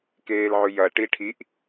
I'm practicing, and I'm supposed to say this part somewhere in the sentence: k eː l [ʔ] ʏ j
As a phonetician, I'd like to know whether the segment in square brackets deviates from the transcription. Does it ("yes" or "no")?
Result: yes